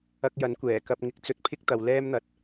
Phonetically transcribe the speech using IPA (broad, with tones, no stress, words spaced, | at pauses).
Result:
ɐ˧k̚jɐ˨˥nkʷɛː˨˩ kɐ˧p̚ŋɪ˧k̚ t͡sɵ˧t̚pʰɪ˥k̚t̪ɐ˨w lɛː˥mn̪ɐ˧t̚